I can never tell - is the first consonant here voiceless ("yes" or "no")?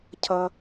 yes